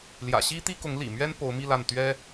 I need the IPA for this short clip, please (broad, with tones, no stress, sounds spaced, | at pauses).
l j ä̰˨˩ ɕ i˥ t̪ i˥ k ʊ˧˥ ŋ l ḭ˨˩ m ɥ ɛ˥ n p o˧˥ ʊ̯ m i˥˧ l a˥˩ n t̪ ɥ ɛ˥